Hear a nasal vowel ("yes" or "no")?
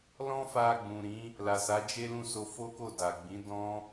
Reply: yes